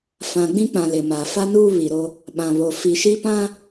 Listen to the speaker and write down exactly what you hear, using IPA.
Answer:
fã˨ɡ͡bĩ˦k͡pã˨ lɪ˨ma˨ fa˦nuː˦ βi˨ɾo˦ | ɓã˨βo˨ fi˨ʃi˦pã˦

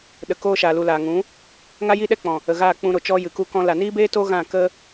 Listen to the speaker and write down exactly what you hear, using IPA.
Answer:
ɗə˨koː˧ʃa˨ lu˨laː˨ŋũ˨˦ | ŋa˦jiː˦ɗɛ˦k͡pɔ̃˨ | ə˨ɣaː˦˨k͡pũ˧ɾo˨ t͡ʃɔ˧jɨ˨ku˧kɔ̃˧ la˨niː˦beː˦to˦ ɣã˦˨kə˦

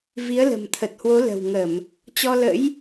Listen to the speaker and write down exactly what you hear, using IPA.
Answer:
vi˨˦ə̯lə̤˨˩mt̪ʰə˨˩t̚hwo˨˦ lə̤˨˩wŋə˧˩˨m | t͡ɕɔ˧lə̰˧˥j

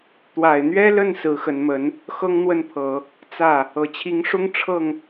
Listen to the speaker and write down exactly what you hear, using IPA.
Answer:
t̪wa˨˩ɪ̯n̪ɥɛ˥lə˥˩n sɹ̩˧˥xə˧˥nmə˧˥n | xɤ˥ŋn̪wə˥˩npʰɤ˨˩˦ | t͡sä˥˩ | ɤ˨˩t͡ɕʰi˧˥ŋʂʊ˥ŋ ʈ͡ʂʰɤ˥˩ŋ

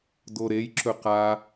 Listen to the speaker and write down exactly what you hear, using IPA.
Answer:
doɾej ǁɵqa

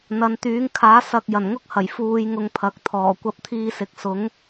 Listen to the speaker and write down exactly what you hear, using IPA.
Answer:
n̪ɐ˨˧nt̪yː˨˥ŋkʰaː˨˥ sɐ˨k̚ jɐ˨˩nŋʊ˥k̚hɐ˨˩j fuː˧jŋʊ˧ŋpʰɐ˨k̚ t̪ʰɔː˨˩kʷɐ˧p̚t̪ʰiː˧ sɪ˨˥k̚sʊ˨˥ŋ

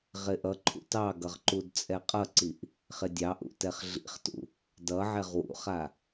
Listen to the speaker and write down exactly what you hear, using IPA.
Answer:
ʁɪʔʌǃʰṵ tɑɡʌʁ ǃudt͡sʼɛqʼʌǀiʔ | χɪdʲɑʔṵ tɛχɮḭχtṵ | dʌ ʕɛʁwṵχa

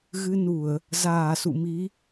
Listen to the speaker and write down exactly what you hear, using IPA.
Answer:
ɣɨ˧nu˧˩˨ə̯ | zaː˧˩sṵ˧˨mi˨˦

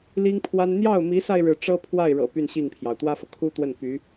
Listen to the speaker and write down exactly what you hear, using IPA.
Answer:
li˥ŋpʰwa˥n n̪jɑ˥˩ʊ̯mi˧˥sa˧ɪ̯ ɻɻ̩˥˩ ʈ͡ʂɤ˥pʰwa˥˩ɪ̯ɻɤ̰˨˩ py˥˧nɕi˥˩ŋpʰjɑ˩ʊ̯ t̪wä˥fɤ˨kʰu˥t̪wə˥˩n py˧˥

